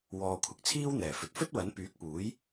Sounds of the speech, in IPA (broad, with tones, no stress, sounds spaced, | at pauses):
w ɔː˨ kʷʰ ɪ˨˥ k̚ t͡sʰ iː˥ w n̪ ɛː˨˩ f ɵ˨ t̚ f ɵ˥ t̚ w ɐ˨˥ n p yː˨˥ k̚ p uː˨˥ j